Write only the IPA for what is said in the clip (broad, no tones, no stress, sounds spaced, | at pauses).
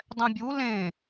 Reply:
dˤ ɛ̃ bʲ u l ẽ